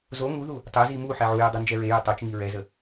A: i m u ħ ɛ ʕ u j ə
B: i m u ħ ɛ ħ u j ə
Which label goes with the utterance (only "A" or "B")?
A